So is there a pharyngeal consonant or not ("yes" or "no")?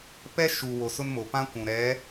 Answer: no